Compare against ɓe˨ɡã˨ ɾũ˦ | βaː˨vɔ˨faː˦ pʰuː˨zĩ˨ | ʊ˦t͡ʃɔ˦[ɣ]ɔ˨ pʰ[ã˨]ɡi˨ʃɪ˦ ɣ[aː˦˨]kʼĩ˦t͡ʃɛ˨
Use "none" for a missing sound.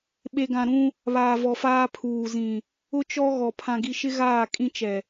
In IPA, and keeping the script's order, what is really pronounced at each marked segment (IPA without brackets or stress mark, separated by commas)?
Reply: ɣ, ã˨, aː˦˨